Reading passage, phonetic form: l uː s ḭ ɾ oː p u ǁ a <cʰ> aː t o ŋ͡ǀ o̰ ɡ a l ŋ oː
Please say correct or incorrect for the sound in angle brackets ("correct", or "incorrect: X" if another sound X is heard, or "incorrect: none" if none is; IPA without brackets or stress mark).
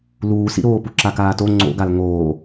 incorrect: k